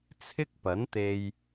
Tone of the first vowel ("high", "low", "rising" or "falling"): high